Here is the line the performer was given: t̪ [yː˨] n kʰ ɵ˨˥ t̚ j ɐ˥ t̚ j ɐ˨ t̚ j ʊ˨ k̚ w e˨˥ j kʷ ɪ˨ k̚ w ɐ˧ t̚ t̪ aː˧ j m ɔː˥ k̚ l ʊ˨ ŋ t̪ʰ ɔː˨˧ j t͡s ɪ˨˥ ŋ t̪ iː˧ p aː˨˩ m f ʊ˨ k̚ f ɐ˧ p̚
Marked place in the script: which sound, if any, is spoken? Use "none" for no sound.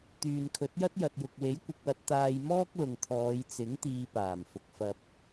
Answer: yː˨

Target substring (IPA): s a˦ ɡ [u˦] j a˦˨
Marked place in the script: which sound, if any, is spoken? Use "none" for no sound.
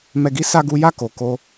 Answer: u˦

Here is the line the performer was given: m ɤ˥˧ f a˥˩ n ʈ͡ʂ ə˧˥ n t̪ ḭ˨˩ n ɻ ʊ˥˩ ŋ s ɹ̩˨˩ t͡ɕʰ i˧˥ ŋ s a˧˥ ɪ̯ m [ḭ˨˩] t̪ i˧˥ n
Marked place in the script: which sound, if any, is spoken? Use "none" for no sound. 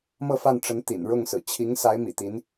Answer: ḭ˨˩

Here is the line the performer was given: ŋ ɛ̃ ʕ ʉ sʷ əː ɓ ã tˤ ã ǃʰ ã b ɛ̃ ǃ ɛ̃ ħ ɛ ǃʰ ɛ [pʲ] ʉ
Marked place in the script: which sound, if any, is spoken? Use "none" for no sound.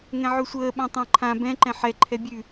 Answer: bʲ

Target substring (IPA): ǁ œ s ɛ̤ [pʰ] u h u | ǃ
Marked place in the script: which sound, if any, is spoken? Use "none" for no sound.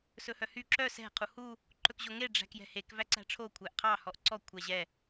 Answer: qʰ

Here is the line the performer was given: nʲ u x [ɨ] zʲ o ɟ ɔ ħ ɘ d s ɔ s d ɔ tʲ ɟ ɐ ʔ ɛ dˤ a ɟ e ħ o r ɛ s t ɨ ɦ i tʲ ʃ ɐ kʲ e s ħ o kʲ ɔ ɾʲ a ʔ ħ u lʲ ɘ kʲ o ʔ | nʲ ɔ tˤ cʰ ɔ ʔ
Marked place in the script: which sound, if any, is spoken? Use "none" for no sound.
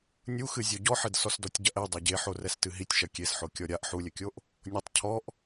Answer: ɨ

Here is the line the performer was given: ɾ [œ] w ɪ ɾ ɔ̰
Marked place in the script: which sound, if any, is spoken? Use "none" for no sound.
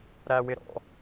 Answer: æ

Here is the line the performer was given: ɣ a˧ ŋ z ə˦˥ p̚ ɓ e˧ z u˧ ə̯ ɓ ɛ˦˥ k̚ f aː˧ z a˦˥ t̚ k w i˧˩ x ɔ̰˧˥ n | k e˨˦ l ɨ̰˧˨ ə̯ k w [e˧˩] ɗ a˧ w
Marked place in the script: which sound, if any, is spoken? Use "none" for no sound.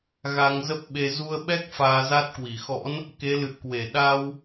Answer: e˧˩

